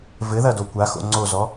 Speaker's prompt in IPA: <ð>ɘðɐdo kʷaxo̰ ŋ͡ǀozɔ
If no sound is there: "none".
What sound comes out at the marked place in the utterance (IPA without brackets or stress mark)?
v